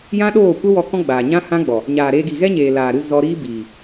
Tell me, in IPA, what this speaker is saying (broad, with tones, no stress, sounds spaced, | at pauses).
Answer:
j ã˦ ɗ oː˦˨ kʷ ə˦ w ɔ˧ k ɔ̃˦ ɡ͡b aː˨ ɲ ã˦ h ã˦ ɡ͡b ɔ˨ | ɲ aː˨ ɾ eː˧ ɡ i˨ ɣ ɛ˦ ɲ eː˨ l aː˨ ɾ ɨ˧ z ɔ˧ ɾ iː˦ b iː˨